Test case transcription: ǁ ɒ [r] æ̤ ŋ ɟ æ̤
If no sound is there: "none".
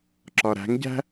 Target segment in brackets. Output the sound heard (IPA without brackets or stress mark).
ɾ